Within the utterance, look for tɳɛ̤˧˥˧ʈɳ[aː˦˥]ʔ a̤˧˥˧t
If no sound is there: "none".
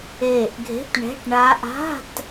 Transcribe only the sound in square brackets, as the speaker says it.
aː˦˥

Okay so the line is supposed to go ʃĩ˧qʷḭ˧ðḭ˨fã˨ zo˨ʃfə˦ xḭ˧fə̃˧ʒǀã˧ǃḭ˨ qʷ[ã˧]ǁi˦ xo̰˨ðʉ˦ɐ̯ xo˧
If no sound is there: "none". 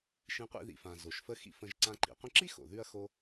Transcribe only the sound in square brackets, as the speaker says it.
ə̃˧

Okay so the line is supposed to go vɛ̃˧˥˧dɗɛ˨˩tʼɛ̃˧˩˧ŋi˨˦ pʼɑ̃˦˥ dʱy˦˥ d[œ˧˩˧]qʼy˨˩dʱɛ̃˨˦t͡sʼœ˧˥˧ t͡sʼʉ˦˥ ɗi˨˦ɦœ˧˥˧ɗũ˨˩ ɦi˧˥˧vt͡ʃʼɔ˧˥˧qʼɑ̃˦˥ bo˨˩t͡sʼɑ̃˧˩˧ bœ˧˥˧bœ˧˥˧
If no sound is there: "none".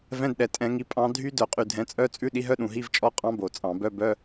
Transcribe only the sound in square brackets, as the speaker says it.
œ˧˩˧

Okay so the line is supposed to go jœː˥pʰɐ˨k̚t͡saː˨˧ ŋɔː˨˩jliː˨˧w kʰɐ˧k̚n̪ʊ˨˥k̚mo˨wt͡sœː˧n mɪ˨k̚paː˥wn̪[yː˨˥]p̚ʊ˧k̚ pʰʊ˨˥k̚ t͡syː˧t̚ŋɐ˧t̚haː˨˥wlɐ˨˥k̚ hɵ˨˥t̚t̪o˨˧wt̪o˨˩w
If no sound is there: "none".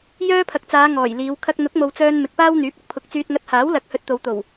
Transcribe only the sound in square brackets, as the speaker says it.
yː˨˥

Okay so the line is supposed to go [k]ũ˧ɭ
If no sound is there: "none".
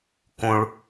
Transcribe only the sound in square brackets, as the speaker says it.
k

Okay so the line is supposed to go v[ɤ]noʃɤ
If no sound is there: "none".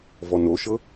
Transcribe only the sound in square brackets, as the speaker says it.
ɔ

